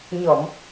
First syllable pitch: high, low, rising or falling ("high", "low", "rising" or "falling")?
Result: low